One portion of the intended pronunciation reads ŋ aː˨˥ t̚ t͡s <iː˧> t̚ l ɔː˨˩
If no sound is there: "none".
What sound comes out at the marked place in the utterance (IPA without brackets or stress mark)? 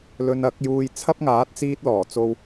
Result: iː˧